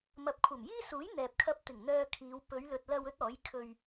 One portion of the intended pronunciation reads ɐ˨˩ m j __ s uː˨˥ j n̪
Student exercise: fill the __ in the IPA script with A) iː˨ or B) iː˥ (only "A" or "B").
B